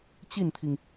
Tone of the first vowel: falling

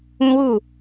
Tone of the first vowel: high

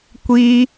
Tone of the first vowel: high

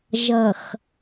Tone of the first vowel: low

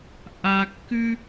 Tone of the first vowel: low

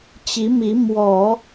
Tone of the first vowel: rising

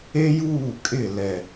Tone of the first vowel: high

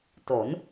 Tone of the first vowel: rising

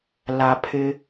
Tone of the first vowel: low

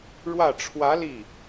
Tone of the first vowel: falling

